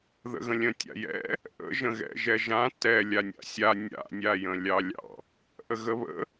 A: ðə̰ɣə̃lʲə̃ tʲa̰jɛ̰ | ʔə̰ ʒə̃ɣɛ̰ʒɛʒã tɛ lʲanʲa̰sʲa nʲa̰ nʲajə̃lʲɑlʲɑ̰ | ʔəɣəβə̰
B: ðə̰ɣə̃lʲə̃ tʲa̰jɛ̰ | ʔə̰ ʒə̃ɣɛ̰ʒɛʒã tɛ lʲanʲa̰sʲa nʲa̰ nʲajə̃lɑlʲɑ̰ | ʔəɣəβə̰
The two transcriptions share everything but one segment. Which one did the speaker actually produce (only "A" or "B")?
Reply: A